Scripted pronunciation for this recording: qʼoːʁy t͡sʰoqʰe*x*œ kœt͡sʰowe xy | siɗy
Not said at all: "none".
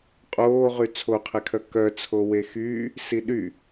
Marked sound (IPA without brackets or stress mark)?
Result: kʰ